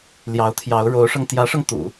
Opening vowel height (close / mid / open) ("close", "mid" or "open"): open